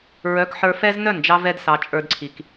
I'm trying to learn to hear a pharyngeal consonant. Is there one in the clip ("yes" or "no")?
yes